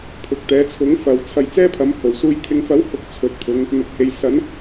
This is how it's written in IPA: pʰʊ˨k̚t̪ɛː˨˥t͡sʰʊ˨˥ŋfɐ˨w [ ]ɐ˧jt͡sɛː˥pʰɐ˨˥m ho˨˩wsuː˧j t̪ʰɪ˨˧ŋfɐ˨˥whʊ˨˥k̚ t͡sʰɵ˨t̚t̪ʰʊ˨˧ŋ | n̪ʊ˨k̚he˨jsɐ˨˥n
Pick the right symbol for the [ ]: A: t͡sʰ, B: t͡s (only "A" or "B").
A